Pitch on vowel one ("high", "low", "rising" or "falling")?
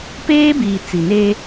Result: high